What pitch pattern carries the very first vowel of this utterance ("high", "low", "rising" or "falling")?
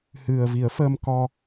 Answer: low